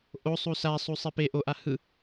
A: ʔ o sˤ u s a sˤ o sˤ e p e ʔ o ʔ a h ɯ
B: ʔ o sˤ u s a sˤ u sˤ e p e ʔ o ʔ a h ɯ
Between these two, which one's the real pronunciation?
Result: B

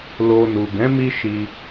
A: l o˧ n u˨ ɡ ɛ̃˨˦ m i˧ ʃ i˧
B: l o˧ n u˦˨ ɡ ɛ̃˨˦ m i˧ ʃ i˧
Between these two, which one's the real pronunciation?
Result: A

